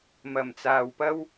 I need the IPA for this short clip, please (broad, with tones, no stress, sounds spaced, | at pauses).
m ɐ˨˩ m t͡s aː˨ w p ɐ˥ w